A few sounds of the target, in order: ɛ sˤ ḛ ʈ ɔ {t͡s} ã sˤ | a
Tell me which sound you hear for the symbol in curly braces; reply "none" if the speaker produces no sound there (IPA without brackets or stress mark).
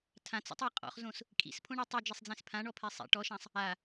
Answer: ʃ